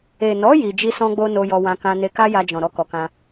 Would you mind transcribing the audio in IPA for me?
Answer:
e˨ n ɔ˨˦ j i˧ d͡ʒ i˦ s ɔ̃˦ ɡ͡b o˦ n o˧ j ɔ˧ w ã˧ k ã˧ n e˧ k a˦ j a˧ d͡ʒ ɔ̃˨ ɾ ɔ˧ k ɔ˨ k ã˧

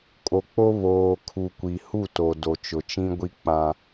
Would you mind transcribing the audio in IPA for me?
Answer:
kʼ o˨ k͡p o˦ β oː˨ kʰ u˨ kʷ i˨ h u˦˨ t o˨ d o˨ t͡ʃ ʊ˨ t͡ʃ ĩ˦ ɡʷ i˦ k͡p ã˦

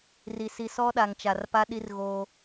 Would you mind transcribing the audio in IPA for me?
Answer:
r i˨ s i˨ s ɔ˦ ɗ a˨ ŋ t͡ʃ a˨ r p a˦ ɗ i˦ r ɣ oː˦

